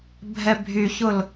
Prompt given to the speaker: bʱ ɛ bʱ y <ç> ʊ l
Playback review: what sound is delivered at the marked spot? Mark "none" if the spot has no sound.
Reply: ç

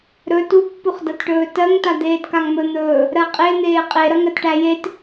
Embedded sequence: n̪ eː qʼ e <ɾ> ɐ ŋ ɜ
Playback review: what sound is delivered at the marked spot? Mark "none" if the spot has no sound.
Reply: ɾ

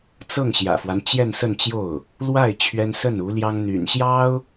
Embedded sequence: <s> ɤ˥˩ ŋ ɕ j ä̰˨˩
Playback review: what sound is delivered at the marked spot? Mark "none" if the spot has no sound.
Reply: t͡s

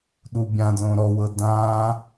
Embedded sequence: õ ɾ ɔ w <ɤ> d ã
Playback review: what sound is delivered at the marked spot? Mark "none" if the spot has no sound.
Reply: ɤ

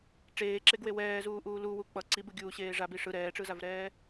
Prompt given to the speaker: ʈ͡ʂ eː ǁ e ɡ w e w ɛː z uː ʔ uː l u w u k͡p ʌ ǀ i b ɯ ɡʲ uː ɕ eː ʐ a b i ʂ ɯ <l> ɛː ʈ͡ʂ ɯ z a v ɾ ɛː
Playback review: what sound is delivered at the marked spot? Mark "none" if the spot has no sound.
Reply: ɾ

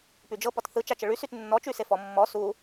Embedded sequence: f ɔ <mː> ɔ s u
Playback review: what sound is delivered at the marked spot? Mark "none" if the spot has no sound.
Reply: mː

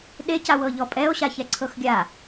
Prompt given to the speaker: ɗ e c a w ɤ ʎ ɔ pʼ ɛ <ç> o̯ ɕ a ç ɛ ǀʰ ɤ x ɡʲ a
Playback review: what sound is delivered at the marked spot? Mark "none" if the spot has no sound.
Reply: none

